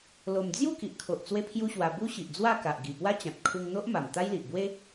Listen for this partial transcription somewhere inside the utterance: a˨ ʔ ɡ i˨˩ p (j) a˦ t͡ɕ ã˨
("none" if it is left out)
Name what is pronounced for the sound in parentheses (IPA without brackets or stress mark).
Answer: w